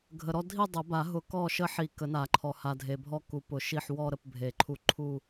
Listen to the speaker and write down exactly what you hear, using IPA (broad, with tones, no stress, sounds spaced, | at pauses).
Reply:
ɡʱ ə˨ ɾ ɔ˥˧ dʱ i˥˧ dˤ ə˨˩˦ b a˨˩˦ ɦ ʊ˨˩˦ k ɔ˥˩ ʃ ə˥˩ ħ i˨˩˦ k ə˨˩˦ n a˨˩˦ ǃʰ ɔ˨ h a˨ dʱ e˨ bʱ ɔ˥˩ k u˨˩˦ p ʊ˨˩˦ ʃ i˥˩ ħ w ɔ˥˧ ɾ ə˥˩ p bʱ e˨˩˦ ǃʰ u˥˩ ǃʰ u˥˧